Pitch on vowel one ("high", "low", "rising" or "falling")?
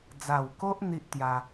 low